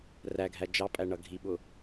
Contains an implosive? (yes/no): yes